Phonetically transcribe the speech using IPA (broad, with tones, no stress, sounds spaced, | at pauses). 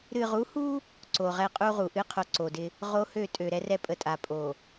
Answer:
ɾ ɨ˨ ʁ u˨˦ h u˦ | ǀ o˨ ʁ ɛ˦ qʼ u˦ ʁ u˨ ʔ ɨ˦ qʰ o˨ ǀ o˨ d ɪ˦ | ʁ o˦ h ø˦˨ tʼ ø˨ ɾ ɛ˦ r ɛ˦ pʼ ə˨ tʼ a˨ pʼ o˨